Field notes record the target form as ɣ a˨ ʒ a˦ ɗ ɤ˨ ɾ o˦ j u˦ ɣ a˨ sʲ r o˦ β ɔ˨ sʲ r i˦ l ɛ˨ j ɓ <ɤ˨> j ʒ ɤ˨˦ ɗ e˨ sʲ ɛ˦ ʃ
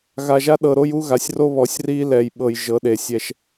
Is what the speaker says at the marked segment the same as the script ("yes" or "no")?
yes